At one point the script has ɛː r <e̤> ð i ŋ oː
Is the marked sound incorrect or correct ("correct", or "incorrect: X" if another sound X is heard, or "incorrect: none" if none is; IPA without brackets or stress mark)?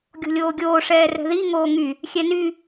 incorrect: ɛ̤